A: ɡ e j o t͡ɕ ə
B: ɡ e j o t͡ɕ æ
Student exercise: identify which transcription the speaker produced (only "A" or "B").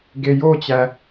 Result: B